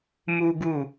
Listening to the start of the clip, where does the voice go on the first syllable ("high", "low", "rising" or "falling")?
high